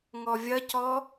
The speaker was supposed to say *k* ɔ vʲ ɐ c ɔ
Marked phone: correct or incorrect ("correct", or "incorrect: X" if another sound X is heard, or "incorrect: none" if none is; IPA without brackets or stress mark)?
incorrect: ŋ